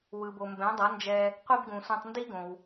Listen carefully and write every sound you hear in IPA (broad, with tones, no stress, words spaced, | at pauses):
wɯ˩bo˩mbɛ̃˩˥ dˤʌ˩˥nd͡ʒɛ˧ | qʷi˥b ɡũ˩sʷẽ˧tˤndi˥ɡõ˩w